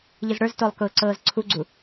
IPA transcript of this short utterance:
ʎ ɨ z ɽ ə˞ z t o lˠ k ʊː ǀ ɤː z ǀʰ u ɡ͡ǀ u

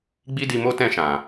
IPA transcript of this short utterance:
ɡ͡b i˦ d i˧ m o˦ t ɛ̃˦˨ ʃ ã˨

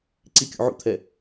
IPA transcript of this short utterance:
ǀ i kʲ ṵ ʕ ṵ t̪ʰ ɛ

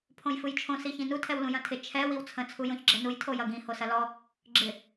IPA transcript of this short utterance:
pʰ õ j f ɯ j t͡ʃʰ õ s i ç ĩ n u tʰ ɛ w l ũ j ɐ̃ tʰ ɪ t͡ʃʰ ɛ w i w t͡sʰ ə̃ t͡sʰ u j õ ç ɡ͡ǁ ɛ n u j tʰ o j ɐ ɡ ĩ h o s ɐ l ɔ | ɡ͡ǁ ɪ

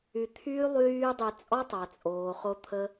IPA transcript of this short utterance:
y˧ t̪ʰ yː˦ lˠ yː˦ dˤ y˧ t͡sʼ ɔ˦ tˤ a˨ t͡sʼ oː˨ χ o˧ t̪ʰ ə˦

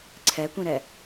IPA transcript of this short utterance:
ǀʰ ɛ kʷ ĩ ɾ ɛ

